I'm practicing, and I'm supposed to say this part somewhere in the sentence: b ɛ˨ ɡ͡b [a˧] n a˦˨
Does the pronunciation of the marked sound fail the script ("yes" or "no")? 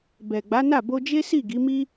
yes